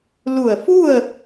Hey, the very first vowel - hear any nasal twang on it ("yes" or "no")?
no